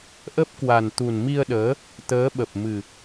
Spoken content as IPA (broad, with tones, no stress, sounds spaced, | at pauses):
ʔ ə˦˥ p̚ k w a˨˩ n t̪ u˨˩ n m i˧ ə̯ ɗ əː˨˦ | t̪ əː˨˦ ɓ ə˨˩ p̚ m ɨ˨˩